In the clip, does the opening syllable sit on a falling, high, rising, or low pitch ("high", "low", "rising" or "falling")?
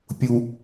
high